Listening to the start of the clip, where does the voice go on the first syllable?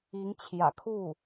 rising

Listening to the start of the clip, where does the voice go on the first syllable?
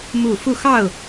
falling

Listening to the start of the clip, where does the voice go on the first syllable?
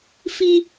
high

